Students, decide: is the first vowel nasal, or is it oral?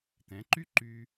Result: nasal